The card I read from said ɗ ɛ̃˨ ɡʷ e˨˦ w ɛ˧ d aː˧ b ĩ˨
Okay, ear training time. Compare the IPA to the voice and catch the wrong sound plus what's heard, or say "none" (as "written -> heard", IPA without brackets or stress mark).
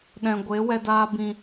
none